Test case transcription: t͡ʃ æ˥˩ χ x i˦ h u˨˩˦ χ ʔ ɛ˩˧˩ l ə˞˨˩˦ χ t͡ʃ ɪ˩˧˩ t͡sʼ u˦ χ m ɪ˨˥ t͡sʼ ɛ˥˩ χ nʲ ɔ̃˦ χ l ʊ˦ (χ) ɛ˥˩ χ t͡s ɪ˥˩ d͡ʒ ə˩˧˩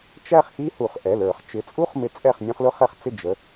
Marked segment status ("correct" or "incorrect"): correct